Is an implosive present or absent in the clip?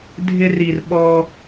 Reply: present